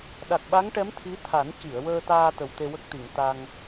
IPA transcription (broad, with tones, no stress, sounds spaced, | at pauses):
ɗ a˨˩ k̚ ɓ a˧˥ ŋ ʈ ɛ˧˥ m t̪ʰ i˧˥ t̪ʰ a˨˩˦ n c i˨˩˨ ə̯ w əː˧ t̪ aː˧ t̪ ə˨˩ w t̪ e˧ w ə˦˥ k̚ t̪ i˨˩˨ ŋ t̪ a˧ ŋ